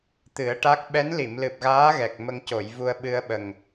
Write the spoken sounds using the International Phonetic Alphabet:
t̪ ɨ˨˩˦ ə̯ ʈ a˦˥ k̚ ɓ ɛ˧˥ n l i˨˩˨ m l ɨ˨˩ p̚ ɣ aː˧˥ ɣ ɛ˨˩ k̚ m ə˧ ŋ c o˨˩˨ j v u˧ ə̯ ɓ ɨ˧ ə̯ ɓ ə˨˩ ŋ

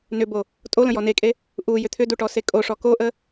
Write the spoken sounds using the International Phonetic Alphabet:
n ʏ b o | tʼ o l ə̃ j ɔ n e kʼ e | ʔ u j ʏ t̪ʰ ʏ d u ʈ ɔ s e kʼ o ʂ ɔ k o ʔ ə

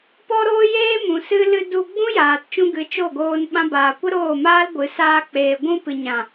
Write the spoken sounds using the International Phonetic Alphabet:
p ɔ˦ ɾ oː˦ j eː˦ m ũ˨ s ɨ˦ l ɨ˧ d u˧ ɡ͡b ũ˦ j aː˨ t t͡ʃ ũ˧ ɡ ɨ˨˦ t͡ʃ o˦˨ ɡ oː˧ n ɓ ã˧ b aː˨ kʷ ə˦ ɾ oː˦˨ m aː˦ l ɡʷ ɨ˨˦ s aː˧ k͡p eː˨ ɡʷ ũ˧ p ɨ˨ ɲ ã˨

